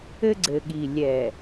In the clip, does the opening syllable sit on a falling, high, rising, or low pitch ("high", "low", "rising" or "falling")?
high